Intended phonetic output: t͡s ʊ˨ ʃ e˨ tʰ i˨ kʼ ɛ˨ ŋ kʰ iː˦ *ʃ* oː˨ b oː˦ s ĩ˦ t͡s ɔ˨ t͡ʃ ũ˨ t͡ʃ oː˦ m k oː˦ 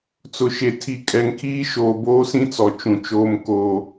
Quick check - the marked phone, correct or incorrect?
correct